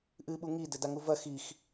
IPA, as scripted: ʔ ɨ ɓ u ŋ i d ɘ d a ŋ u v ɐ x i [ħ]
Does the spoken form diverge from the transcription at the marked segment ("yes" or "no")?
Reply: yes